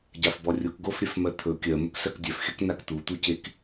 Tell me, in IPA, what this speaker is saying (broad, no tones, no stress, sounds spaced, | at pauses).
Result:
ɟ a f b ɔ rʲ o k ɡ o f ɾʲ œ f m ɜ t̪ʰ ɵ kʲ ɜ m ɵ k s ɜ k dʲ œ f xʲ ɜ k n a k t̪ u t̪ u c e k